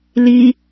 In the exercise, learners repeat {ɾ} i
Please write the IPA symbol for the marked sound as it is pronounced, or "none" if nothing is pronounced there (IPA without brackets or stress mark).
l